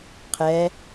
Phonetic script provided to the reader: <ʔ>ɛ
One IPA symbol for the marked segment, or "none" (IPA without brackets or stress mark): qʰ